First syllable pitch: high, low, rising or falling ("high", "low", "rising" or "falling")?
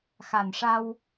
low